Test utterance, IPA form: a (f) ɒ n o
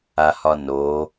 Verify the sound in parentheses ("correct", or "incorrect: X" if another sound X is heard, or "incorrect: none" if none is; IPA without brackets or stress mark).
incorrect: h